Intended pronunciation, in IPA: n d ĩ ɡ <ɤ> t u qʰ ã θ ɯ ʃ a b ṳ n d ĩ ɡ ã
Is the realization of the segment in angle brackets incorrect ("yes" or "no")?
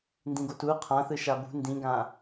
yes